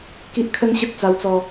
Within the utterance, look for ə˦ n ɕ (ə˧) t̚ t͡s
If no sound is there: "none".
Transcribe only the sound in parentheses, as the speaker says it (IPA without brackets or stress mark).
ə˦